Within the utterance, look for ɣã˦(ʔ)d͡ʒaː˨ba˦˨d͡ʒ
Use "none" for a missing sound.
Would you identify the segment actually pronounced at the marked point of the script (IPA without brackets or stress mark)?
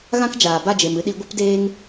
k